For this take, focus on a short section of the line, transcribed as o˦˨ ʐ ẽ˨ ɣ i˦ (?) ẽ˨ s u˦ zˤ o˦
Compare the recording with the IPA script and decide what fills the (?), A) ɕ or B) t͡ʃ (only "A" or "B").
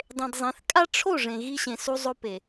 A